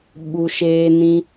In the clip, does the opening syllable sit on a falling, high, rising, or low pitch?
low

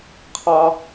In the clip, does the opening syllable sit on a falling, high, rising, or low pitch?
low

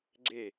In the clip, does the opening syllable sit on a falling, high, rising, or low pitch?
falling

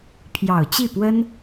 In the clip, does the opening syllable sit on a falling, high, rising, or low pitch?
low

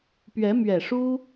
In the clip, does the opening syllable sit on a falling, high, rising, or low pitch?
rising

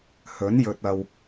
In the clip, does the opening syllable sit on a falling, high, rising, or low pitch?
rising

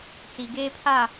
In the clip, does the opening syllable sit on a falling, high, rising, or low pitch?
high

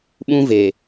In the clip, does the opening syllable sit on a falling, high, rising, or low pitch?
high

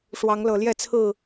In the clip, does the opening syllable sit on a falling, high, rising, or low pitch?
rising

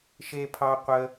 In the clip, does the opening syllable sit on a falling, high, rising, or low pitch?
high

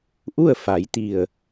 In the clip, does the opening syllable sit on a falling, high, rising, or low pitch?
falling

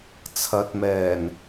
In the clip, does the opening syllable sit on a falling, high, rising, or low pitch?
rising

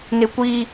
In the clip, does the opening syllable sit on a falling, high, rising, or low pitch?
high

